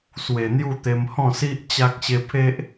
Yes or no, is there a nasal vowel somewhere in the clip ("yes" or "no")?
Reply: yes